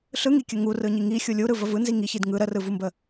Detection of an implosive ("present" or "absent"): absent